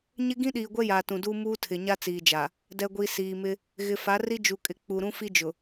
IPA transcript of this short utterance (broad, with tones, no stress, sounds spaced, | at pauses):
ɲ ɪ˦ ɡ ĩ˦ ɗ iː˨ ɡʷ ɛ˦ j aː˨ t ũ˨ d uː˦ m uː˦ tʰ ɪ˨ ɲ a˦ t͡s iː˨ d͡ʒ a˨ | d ɛ˨ ɡʷ i˨ s iː˨ m ɪ˦ | ɣ ɪ˨ f a˨˦ r i˦ d͡ʒ u˨ kʼ ɪ˨ k͡p u˨ ɾ ũ˦ f i˦ d͡ʒ ʊ˨